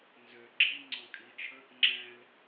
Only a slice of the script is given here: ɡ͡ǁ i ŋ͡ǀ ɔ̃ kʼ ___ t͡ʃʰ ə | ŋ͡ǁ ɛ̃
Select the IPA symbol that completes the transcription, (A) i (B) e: A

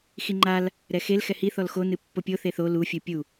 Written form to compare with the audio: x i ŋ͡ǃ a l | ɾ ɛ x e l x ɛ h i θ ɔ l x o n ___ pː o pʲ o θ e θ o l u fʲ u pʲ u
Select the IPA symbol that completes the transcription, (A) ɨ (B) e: A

